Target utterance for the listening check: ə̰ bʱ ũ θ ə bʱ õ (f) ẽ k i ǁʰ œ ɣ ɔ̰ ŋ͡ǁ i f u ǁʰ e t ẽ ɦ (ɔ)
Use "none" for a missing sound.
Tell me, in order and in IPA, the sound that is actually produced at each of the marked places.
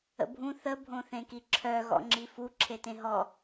θ, ɔ

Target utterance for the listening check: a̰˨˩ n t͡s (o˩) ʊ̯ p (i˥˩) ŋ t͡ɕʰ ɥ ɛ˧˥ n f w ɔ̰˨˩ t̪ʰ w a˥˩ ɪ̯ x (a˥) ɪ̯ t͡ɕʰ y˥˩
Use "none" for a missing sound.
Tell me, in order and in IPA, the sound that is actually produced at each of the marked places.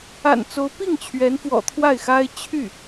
o˧˥, i˥˩, a˥

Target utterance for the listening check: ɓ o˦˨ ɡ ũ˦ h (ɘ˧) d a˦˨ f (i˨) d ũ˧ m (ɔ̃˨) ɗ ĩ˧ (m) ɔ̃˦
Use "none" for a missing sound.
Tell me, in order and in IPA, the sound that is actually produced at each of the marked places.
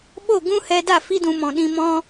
ɛ˧, i˦, ɔ̃˨, m

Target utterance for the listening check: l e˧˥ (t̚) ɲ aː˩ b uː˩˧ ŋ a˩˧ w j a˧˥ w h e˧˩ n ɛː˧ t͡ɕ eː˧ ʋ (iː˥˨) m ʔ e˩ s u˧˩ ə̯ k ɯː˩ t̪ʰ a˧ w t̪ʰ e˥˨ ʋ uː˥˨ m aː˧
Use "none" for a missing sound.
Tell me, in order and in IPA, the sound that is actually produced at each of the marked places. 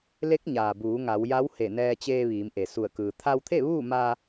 k̚, iː˩˧

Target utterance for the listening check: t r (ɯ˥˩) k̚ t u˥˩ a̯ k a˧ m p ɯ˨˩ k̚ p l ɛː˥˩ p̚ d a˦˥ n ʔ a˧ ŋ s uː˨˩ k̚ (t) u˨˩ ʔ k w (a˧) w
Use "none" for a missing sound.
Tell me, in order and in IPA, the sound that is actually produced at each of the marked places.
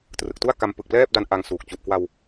ɯ˨˩, t͡ɕ, a˧

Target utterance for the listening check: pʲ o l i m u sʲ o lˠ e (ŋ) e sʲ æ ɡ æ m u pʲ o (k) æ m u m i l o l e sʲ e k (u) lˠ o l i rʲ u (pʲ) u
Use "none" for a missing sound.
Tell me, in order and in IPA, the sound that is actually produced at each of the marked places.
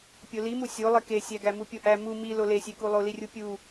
k, ʔ, u, pʲ

